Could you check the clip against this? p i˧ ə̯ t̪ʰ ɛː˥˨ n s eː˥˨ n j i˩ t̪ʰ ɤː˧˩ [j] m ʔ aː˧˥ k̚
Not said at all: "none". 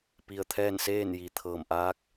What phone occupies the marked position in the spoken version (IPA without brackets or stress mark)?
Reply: none